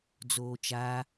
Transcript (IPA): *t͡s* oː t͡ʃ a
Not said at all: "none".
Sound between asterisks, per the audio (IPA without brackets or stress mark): d͡z